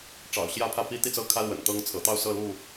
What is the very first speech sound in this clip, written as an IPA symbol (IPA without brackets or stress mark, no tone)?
ʈ͡ʂ